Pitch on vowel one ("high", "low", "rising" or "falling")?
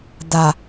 low